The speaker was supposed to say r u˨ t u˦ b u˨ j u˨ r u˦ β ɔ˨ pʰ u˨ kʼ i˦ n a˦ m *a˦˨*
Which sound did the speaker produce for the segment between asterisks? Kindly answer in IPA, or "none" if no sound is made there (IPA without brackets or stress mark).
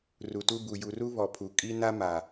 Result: a˨